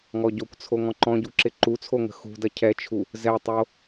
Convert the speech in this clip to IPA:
ŋ ɔ ɟ o kʷ t͡sʰ o ŋ ɔ̃ ǃ ɔ̃ ɟ u ǁ ɪ ǃ u t͡sʰ o ŋ ə̤ x ṳ d ɐ cʰ ɛ t͡ʃʰ u | z ɛ tˤ o

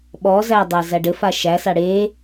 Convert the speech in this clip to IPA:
ɓ ɔ z æ dˤ æ z æ ɖ ɘ f a ʃ æ s a ɽ e

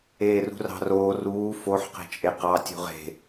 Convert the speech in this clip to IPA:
eː r ṳ r ɑ̤ r oː r uː f o ħ q e̤ t͡ʃʼ e q ɑ tʲ ṳ ʁ e̤

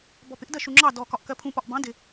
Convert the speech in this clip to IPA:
b ɔ p ɪ ʔ d ɜ ʃ u ŋ͡ǁ ɑ d ɔ k ɒ ʔ k ɜ pʰ ũ p ɒ ʔ b ɑ̃ d ɪ

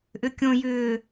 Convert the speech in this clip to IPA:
ʔ ʏ kʲ õ j ʏː

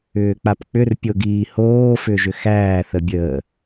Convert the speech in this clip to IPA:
ʏː k͡p a p k͡p ʏ r pʲ o ɡ iː h oː f ʏ ʒ ʏ x æː θ ə bʲ əː

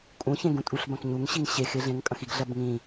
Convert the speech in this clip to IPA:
kʼ ũ ç ẽ ɡ ũ tʼ u ɬ b ɐ̃ k ɲ u ŋ ɕ i ŋ ɕ e x e ɮ ẽ ŋ kʼ ɐ̃ x i ɡ ɮ ɐ b ŋ ĩ

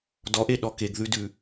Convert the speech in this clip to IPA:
d ɔ ʔ e ɗ ɔ k e ɡ ð ʉ d ʉ

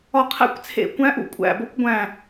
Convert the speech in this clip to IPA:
ɒ˧˩ qʰ æ̰˧˥ kʷ t͡sʰ ḛ˧˩ kʷ æ̃˧˥ ʔ ṵ˧ kʷʼ æ̰˧˩ b o˧˥ kʷ ɡʷ æ̃˧˩

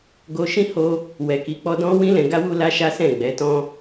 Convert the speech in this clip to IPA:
ɡ o˧ ʃ ĩ˦ h o˧ | w ɛ˨ k i˨˦ k͡p ɔ˧ d ɔ̃˦ w ĩ˦ l ɛ̃˧ ɡ a˦ w u˦ l a˦ ʃ a˦ s ɛ̃˦˨ ɡ͡b ɛ˨˦ t ɔ̃˦

